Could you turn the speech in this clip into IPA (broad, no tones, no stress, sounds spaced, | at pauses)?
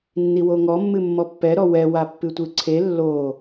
nː i w o ŋ ɔ mː ɨ mː ɔ pː ɛ ɾ ɔ w ɛ w a pː ɨ tʷ ɨ ǀʰ e lː o